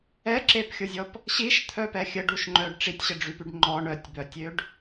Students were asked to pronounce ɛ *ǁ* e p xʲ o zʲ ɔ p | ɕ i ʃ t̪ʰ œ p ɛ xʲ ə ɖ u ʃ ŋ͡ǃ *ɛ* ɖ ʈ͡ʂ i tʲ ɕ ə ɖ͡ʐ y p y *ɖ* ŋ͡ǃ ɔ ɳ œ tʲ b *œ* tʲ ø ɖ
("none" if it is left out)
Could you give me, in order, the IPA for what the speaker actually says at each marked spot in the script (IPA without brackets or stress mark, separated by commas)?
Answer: ǁ, œ, ɖ, œ